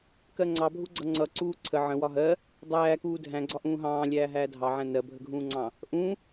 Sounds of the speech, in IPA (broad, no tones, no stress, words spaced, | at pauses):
kɜŋ͡ǀɑbʱuɡ͡ǀʌ ŋ͡ǀʌ ǀuːǀʰə ʕə̃wɒ ɦɜ | dˤæːkuː dʱæ̃ɡ͡ǀɒ ʔũːɦɑ̃ː lʲæːɦæːdʱɑʕæ̃ nɜbʱəɡʱũːŋ͡ǀɑ̃ | ʔũ